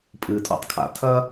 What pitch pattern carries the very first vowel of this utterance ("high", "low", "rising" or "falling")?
low